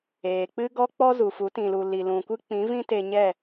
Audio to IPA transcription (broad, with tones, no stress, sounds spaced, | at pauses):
eː˨ k͡p ɨ˦ ɡ ɔ˦ k͡p ɔ˦ z u˨ f u˨˦ t ĩ˨ l u˨ l i˨ l ũ˨ kʷ ɨ˦ k͡p ĩ˨˦ v ĩ˦ t e˧ ɲ ɛ˦˨